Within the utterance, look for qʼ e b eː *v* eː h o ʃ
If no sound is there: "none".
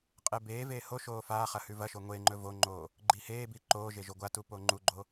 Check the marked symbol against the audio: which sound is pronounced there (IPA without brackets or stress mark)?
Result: v